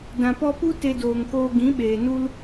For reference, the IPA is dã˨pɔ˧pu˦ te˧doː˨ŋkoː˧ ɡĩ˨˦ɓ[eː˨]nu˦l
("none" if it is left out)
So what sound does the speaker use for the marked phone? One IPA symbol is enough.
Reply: eː˨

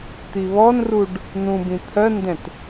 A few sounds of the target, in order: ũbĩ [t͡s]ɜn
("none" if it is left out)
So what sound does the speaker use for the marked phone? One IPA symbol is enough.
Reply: t̪ʰ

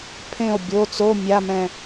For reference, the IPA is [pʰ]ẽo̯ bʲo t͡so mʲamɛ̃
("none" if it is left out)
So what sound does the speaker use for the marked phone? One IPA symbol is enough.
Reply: pʰ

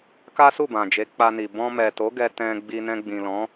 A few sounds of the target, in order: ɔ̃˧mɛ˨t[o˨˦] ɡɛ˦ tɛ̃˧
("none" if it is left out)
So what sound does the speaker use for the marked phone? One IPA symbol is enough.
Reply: o˨˦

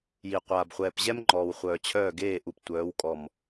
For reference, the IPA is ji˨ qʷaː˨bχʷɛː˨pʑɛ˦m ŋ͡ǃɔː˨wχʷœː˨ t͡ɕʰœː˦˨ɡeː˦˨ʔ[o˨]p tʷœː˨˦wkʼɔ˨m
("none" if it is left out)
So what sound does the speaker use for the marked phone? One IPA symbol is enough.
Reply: u˨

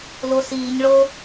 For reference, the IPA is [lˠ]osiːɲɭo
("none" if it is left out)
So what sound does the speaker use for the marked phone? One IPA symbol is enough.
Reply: l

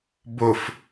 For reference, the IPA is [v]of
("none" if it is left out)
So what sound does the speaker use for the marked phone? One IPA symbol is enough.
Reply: b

